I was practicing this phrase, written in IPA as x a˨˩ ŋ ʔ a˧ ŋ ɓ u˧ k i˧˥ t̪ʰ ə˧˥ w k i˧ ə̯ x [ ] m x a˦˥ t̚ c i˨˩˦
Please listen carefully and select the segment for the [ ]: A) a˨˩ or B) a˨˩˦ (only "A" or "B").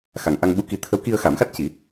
B